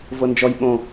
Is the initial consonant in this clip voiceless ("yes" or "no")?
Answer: no